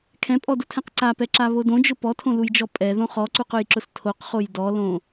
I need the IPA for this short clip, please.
kʰɛ̃pʼɔdʊtʰɛ̃q ǀapɛǁaβo dõd͡ʒʊ pɔtʰõlujd͡ʒɔ pʼɛðõ χɔǀuqʊjǁʊs tʰoqχoj dɔlõ

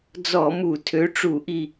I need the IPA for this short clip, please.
d͡zɔ˧˩˧mu˧˩˧ tʰø˨˥ʈ͡ʂu˧˩˧ʔi˧˩

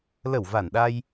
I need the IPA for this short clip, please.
lə˧˩w va˧˩nɗa˧j

